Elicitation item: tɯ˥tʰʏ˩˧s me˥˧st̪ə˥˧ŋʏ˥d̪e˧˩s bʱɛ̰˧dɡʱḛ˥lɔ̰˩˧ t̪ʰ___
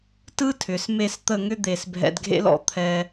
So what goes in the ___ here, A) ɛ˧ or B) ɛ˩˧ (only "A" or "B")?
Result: A